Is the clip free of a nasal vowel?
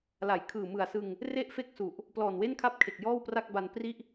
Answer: yes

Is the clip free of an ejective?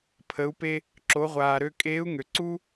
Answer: no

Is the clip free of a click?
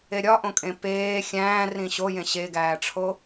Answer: yes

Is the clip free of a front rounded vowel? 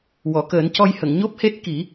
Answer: yes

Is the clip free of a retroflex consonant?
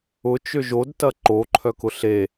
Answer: yes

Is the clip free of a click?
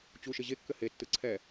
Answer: no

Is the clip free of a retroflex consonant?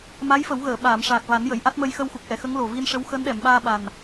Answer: no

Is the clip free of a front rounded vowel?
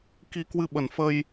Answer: yes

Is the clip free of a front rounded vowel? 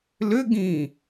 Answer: no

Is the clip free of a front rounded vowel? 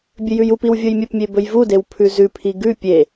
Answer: yes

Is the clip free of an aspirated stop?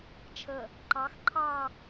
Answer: no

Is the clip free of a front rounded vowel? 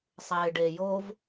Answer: yes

